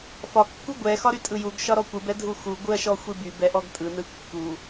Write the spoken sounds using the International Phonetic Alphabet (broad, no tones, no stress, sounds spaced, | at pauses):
f ɒ kː u ɡʷ ɛ x ɒ ɾ y tʼ ɯ j u ɡ ʃ ɒ ɾ ɔ kʷ ɯ b ɛ dʱ u x u ɡʷ ɯ ɐ̯ ʃ ɔ xʷ i b y b ɛ ʔ ɔ ɡ tʼ ɯ n ɯ kː u